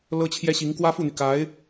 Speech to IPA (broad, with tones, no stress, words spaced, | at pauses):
lɤ˥t͡ɕʰjɛ˥ɕi˧˥ŋ kwä˥fu˥˩n̪y˩ka˧˥ɪ̯